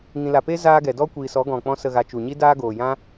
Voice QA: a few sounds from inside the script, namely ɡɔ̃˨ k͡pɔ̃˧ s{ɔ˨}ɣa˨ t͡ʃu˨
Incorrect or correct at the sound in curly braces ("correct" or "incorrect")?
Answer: incorrect